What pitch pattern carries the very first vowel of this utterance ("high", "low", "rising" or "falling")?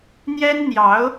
high